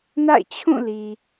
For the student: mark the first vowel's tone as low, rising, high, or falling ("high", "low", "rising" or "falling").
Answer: falling